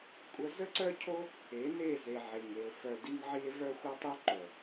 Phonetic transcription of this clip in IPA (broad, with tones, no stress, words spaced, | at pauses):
kʷʼə˦ zə˦ǀœ˦cʰo˦ | e˨˦ne˦˨ ze˨ʕe˨ŋe˨o̯ fœ˨ di˦ŋʕi˦e̯ vœ˦xʷœ˦tˤ œ˦ǃœ˨